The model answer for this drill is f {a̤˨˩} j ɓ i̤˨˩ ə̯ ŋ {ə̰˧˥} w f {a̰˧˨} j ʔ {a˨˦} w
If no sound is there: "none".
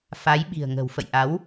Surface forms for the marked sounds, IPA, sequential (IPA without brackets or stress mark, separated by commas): a˨˦, ə̤˨˩, ə̰˧˨, a˨˦